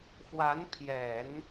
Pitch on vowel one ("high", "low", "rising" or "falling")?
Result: rising